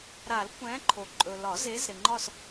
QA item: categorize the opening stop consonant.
plain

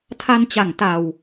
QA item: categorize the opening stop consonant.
aspirated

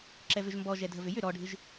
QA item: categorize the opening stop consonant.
click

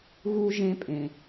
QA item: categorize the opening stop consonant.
ejective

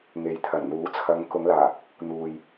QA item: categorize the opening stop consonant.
aspirated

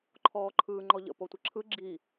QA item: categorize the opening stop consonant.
click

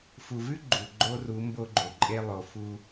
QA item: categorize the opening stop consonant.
click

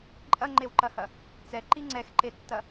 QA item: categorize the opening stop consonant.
click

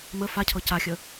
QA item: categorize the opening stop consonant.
aspirated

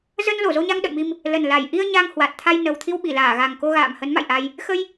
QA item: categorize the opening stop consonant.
implosive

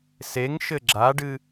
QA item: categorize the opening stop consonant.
click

